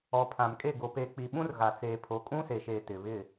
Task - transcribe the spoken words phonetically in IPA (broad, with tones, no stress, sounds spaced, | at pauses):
ɔ˨ pʰ ã˨ m kʼ e˦˨ ɡ o˨ p e˨ k͡p i˨ ɓ ũ˦ r ɣ a˨ t͡s eː˨ pʰ o˨˦ kʼ ũ˦ s e˨ ʃ eː˨ t ɪ˨ β ɪ˦˨